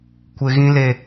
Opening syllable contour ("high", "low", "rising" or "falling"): high